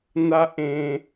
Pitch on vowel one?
high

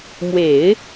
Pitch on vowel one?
low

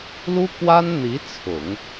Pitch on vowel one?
high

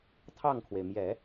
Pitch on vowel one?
falling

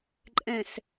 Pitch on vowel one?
low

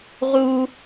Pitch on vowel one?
high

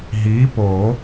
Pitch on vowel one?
rising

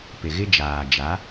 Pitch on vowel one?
low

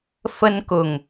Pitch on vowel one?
high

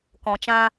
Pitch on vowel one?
low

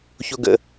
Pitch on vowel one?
low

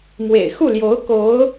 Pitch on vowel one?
low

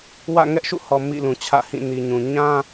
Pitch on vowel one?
falling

